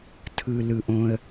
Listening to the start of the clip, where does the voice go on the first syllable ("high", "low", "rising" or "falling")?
low